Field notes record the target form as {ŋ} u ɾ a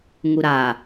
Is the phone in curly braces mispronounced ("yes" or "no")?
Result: no